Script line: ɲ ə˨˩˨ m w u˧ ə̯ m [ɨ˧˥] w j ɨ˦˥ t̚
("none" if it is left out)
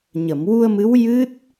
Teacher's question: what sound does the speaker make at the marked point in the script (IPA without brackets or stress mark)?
ɨ˧˥